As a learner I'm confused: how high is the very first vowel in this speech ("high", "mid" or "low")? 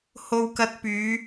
mid